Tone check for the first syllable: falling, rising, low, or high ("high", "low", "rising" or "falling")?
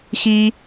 high